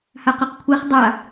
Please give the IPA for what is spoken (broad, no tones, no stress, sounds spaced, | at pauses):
h a q e q kʷʰ e χ dˤ a